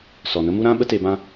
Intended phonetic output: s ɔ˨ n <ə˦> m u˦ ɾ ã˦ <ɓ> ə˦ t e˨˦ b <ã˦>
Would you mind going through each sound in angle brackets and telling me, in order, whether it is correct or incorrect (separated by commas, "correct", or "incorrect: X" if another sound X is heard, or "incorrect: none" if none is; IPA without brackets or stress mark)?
correct, correct, correct